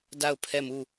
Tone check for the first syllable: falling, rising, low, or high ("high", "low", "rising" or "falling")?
falling